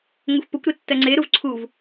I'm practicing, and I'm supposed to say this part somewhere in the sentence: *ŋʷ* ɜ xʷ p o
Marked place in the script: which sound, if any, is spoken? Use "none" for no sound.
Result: ŋʷ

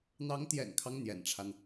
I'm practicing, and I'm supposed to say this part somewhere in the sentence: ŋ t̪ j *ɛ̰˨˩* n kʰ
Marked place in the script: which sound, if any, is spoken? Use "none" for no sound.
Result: ɛ̰˨˩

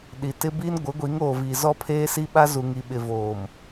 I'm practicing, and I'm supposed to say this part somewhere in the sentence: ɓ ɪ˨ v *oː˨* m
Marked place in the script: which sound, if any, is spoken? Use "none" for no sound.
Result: oː˨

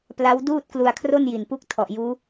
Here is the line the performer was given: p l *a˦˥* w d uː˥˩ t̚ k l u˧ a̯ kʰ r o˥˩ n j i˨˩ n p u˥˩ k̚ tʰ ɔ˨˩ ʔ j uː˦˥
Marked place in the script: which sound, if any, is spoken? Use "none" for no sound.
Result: a˦˥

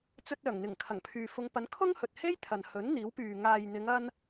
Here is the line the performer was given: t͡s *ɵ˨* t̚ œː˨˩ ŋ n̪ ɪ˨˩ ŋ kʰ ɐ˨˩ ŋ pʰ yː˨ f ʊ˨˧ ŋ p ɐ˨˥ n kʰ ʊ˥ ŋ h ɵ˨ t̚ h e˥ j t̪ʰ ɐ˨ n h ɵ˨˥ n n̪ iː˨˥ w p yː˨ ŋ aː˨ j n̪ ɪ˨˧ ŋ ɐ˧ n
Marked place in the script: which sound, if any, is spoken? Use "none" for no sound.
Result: ɵ˧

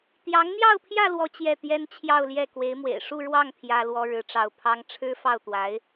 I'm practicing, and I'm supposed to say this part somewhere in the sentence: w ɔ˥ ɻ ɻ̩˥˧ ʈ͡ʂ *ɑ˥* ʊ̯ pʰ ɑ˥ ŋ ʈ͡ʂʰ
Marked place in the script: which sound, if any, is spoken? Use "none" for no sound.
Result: ɑ˥˩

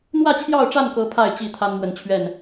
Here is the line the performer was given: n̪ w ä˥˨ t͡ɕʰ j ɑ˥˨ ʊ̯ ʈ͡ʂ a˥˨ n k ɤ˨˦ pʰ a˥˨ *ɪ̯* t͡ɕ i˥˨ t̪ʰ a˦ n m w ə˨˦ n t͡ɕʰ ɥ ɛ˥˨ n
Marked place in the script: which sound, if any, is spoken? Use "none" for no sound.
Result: ɪ̯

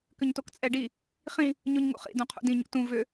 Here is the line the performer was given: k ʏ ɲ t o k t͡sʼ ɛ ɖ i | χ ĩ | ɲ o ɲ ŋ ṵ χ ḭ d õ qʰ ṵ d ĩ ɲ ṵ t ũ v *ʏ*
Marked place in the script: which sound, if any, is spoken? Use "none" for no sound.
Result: ʏ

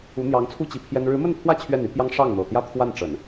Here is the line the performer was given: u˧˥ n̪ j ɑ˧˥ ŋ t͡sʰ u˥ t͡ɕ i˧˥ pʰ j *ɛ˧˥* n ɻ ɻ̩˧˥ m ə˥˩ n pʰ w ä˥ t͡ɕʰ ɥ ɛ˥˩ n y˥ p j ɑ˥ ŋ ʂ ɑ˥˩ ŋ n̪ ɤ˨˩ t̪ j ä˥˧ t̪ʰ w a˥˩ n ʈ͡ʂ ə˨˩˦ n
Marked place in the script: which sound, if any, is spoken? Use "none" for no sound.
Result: ɛ˥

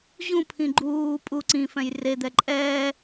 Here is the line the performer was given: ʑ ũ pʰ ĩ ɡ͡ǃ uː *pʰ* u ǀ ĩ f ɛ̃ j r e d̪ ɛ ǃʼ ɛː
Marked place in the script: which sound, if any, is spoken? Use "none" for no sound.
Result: pʼ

